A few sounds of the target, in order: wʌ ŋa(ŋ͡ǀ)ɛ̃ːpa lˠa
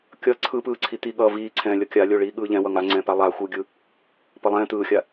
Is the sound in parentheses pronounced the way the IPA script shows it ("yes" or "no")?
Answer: yes